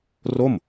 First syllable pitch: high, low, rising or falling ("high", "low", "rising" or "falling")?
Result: falling